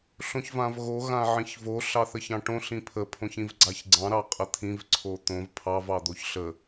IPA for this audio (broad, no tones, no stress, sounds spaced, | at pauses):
ɬ õ ç v ã v ɣ o ɣ ã ʕ ĩ ç v o ɬ ɑ θ ə ç ɑ̃ ʈ õ ɬ ĩ pʰ ə pʰ õ ç ĩ v ɡ͡ǀ a ç ɡ͡ǀ ɑ̃ ɾ ɑ qʼ ə t̪ʰ ĩ v ǀʰ o t̪ õ v pʰ ɑ v ɑ d̪ o ç ɬ ə